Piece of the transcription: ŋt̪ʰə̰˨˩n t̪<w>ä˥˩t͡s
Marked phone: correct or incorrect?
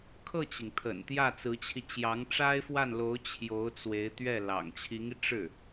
incorrect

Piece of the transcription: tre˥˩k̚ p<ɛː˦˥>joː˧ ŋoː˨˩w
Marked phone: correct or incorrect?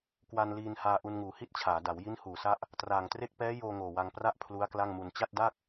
correct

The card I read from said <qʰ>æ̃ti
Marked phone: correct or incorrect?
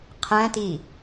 correct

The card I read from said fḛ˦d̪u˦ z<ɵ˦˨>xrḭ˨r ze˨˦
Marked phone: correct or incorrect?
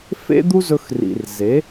incorrect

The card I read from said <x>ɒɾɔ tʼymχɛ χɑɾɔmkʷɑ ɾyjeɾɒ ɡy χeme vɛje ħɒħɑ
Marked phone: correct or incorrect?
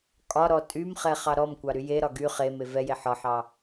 incorrect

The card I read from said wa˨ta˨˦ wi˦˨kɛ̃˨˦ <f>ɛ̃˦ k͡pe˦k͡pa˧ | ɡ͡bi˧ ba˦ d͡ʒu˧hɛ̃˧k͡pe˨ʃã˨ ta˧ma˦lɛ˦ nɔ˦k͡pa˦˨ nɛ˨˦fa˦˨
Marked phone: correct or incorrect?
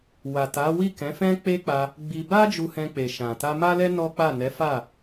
correct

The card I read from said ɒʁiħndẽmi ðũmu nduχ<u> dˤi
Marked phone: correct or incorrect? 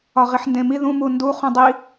incorrect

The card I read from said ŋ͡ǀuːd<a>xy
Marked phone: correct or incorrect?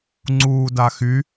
correct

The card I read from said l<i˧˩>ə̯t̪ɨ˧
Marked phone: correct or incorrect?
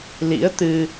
incorrect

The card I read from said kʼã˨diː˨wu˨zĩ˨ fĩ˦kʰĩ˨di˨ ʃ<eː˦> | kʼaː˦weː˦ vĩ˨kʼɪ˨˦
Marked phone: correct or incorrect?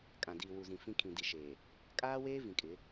incorrect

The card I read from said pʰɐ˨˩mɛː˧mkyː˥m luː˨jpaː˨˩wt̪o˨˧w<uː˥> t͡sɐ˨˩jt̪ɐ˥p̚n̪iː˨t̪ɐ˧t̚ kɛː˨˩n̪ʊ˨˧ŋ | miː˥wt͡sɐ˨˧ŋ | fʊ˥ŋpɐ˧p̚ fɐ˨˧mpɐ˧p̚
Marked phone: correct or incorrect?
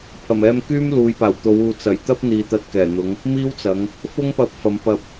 incorrect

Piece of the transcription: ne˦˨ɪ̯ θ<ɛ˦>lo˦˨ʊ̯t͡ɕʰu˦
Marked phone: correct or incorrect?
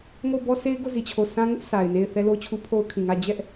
correct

